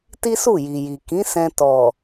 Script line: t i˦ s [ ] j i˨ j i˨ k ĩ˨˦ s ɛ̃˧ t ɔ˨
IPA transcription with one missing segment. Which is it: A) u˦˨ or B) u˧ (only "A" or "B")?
A